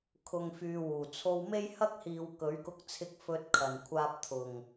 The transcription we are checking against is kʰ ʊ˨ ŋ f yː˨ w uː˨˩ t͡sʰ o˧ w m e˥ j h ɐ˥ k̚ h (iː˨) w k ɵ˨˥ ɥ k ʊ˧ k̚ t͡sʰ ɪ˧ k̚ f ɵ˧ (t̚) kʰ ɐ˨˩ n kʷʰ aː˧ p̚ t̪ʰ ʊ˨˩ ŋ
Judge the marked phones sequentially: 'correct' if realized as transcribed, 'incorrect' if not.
correct, correct

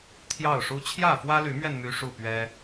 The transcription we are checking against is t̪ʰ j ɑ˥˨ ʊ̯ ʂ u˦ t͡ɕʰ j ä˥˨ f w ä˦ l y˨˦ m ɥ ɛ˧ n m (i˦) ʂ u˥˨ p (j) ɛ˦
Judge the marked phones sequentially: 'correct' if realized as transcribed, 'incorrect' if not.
incorrect: y˦, incorrect: ɥ

